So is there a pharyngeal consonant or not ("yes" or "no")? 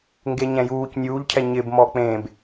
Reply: no